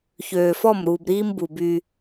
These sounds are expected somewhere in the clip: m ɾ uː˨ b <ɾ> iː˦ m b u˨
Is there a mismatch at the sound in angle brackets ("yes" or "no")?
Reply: no